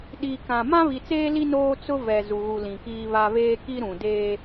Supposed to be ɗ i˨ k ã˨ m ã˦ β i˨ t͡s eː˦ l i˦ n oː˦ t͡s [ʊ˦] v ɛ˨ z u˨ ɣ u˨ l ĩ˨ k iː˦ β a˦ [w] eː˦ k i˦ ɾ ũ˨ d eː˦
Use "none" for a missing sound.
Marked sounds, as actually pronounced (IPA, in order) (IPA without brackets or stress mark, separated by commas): ʊ˦, β